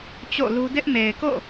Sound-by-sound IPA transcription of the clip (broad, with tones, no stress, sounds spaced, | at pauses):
t͡ɕ o̰˦˨ l u˦ d ɪ˦ ʔ m e˨ ɪ̯ k o̰˦˨